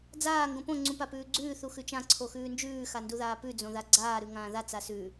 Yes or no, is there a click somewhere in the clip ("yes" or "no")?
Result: yes